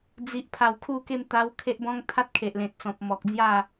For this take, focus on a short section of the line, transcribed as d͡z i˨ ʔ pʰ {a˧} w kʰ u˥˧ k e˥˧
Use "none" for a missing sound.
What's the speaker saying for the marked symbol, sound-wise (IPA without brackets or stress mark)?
a˨˩